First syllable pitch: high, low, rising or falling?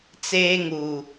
high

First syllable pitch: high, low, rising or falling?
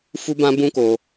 high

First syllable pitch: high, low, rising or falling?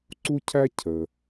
high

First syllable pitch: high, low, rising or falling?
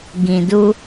low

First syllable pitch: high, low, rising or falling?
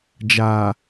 low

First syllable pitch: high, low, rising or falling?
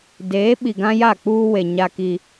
rising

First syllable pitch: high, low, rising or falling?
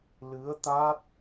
rising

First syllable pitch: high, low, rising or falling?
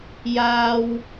high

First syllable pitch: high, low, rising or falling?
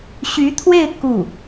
rising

